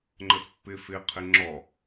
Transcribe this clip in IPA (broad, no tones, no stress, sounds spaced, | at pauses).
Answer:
ŋ͡ǃ ə s pː ɪ f ɪ qʰ ɪ ŋ͡ǁ ɔ